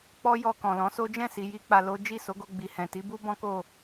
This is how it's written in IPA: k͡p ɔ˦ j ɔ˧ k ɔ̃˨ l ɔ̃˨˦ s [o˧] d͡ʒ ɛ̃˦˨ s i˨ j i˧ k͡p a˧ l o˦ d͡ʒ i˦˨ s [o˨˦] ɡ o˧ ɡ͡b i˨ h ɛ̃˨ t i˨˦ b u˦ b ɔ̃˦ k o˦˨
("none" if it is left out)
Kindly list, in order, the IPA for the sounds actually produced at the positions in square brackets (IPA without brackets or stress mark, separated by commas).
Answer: o˦, o˨˦